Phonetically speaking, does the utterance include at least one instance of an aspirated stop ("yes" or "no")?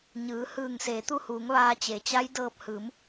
no